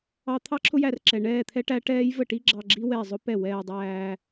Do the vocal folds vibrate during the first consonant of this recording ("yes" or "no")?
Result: no